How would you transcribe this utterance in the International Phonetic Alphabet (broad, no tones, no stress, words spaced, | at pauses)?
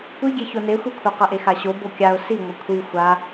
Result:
kʷiɡʲe çonexʷikʷʰa qʌʔexaɕo bokʲaʊ̯ si ŋʷʌkʷʰi xʷa